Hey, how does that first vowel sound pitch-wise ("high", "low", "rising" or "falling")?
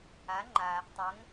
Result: rising